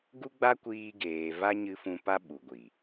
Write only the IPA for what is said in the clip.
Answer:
ɡ u˦ ɡ͡b a˦ kʷ iː˧ ɡ eː˨ v a˦ ɲ ɨ˧ f ũ˧ p a˦ ɓ u˨ ɡʷ i˨

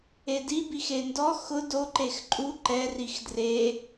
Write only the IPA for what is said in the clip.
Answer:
e d i b i x e n d ɔ x ʊ d o ǃ e x ǃʼ u ǃ ɛ r i x d r e

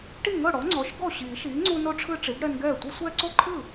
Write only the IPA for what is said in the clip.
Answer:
ʈ i˥˩ ŋ ɤ˥˩ ɽ ɔ˩˥ ŋ͡ǀ ɔ˩˥ ʃ ɡ ɔ˥˩ ɕ iː˨˩˦ ʃ iː˩˥ ŋ͡ǀ u˦ n o˦ ʈ͡ʂʰ ɯ˦ ʈ͡ʂ i˩˥ ɡ ɽ ɛ˦ n ɡ ɛː˥˩ tʷ ɯ˦ sʷ ɛː˦ ǀ o˥˩ ǃʰ ɯ˥˩

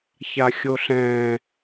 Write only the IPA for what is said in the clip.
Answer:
ç a xʲ o ɬ ɛ̃

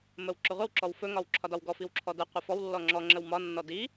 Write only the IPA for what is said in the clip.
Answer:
m ə w ǁ ɵ ʁʷ ə w ǁ ɔ w f ɵ ŋ ɒ w ǁʰ ɒ d ɒ w ɡ ɔ f i w ǁʰ ɔ d ə qʷ ə f ɔ w lː ɔ ŋ͡ǁ ɔ ŋ͡ǁ ə w m ɒ nː ɔ d i

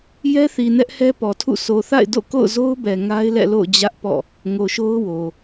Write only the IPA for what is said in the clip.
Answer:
j ɛ˦ θ i˨ n ɛ˦ ʔ h ɛ˦ p ɔ˨ tʰ ṵ˦˨ sʰ o˨ θ a̰˦˨ ɪ̯ d o̰˦˨ k o̰˦˨ ʊ̯ z o˦ ʊ̯ b ɛ˨ ŋ a˦ ɪ̯ l ɛ̰˦˨ l o̰˦˨ ʊ̯ d͡ʑ ä˦ ʔ p ɔ̰˦˨ | ŋ o˨ ʃ o˦ ʊ̯ w o˨

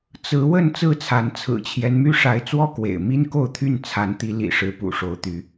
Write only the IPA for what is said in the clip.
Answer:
t͡s ɹ̩˨˦ w ə˥˨ n t͡s ɹ̩˥˨ t͡sʰ a˨˦ n t͡sʰ ɹ̩˨˩ t͡ɕʰ j ɛ˦ n m y˦ ʂ a˨˦ ɪ̯ t͡s w ɔ˦ k w ḛ˨˩ ɪ̯ m i˦ n k o˥˨ ʊ̯ t̪ʰ y˥˨ n t͡sʰ a˨˦ n t̪ i˨˦ l ḭ˨˩ ʂ ɻ̩˨˦ p ṵ˨˩ ʂ o˨˦ ʊ̯ t̪ y˨˦

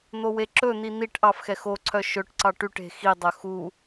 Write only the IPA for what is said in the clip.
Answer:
n̪ o w e ǁ ɵ n̪ i n̪ i ʈ ʔ ɑ f x ɛ x o ǀʰ œ ʃ ɵ ʈ ǀ ɑ ʈ y ʈ e̤ x i dˤ œ x u

